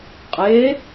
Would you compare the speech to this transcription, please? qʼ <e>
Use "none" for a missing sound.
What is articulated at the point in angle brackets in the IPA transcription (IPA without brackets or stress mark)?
e